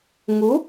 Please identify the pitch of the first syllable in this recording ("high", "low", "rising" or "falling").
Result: rising